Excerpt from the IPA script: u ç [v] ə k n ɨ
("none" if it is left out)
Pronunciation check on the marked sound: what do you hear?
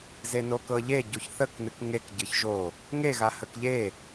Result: θ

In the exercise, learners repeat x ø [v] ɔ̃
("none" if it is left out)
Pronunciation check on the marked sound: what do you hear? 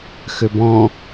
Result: b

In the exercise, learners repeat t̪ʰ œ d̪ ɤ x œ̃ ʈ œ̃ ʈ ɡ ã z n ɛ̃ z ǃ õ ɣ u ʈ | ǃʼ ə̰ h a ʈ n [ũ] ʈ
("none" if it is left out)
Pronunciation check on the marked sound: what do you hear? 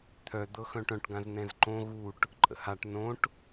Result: õ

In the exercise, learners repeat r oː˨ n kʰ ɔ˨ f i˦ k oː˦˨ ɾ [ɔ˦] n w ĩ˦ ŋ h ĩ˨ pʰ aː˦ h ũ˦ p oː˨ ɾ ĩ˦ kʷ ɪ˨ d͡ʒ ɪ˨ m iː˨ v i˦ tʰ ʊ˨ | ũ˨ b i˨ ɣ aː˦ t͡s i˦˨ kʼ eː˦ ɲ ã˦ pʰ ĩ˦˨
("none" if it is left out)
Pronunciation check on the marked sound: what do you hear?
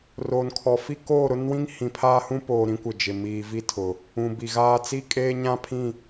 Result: ʊ˦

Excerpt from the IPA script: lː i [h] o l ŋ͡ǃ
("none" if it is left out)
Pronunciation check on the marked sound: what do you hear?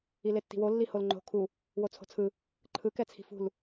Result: h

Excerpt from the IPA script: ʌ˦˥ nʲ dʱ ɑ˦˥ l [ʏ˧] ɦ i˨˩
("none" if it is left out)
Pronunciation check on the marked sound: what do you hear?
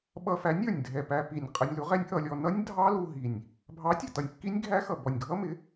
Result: u˧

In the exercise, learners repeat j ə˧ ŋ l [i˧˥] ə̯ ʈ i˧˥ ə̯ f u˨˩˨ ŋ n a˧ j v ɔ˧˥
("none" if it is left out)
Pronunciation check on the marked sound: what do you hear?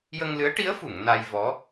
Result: ɨ˧˥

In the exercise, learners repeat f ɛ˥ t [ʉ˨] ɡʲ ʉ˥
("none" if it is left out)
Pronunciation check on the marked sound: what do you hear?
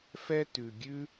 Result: ʉ˨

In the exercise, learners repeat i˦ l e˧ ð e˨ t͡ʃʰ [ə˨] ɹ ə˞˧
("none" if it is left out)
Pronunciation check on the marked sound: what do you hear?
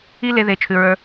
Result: ʉ˨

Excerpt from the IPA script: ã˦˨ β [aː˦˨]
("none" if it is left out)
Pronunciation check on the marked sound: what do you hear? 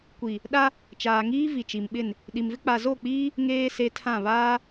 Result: aː˦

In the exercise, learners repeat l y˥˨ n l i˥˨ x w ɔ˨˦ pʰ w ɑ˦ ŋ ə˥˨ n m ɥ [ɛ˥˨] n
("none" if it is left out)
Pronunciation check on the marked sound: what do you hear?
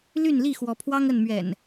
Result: ɛ̰˨˩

